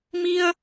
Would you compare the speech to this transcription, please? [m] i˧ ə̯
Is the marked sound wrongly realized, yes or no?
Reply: no